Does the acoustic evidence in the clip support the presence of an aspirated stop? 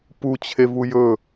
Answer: yes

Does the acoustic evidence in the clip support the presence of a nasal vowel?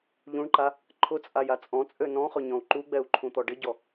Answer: yes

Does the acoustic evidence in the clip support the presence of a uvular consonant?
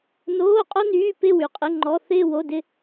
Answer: yes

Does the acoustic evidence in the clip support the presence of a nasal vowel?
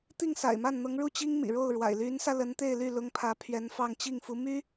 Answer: no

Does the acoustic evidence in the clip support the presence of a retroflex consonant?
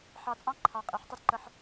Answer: no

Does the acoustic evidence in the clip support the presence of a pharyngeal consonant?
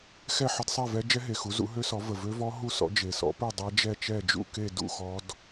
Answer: yes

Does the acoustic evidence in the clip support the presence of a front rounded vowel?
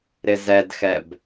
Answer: no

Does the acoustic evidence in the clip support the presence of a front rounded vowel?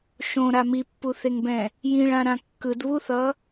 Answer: no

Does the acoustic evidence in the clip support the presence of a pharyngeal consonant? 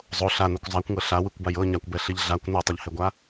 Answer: no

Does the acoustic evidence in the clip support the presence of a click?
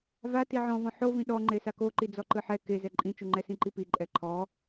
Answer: yes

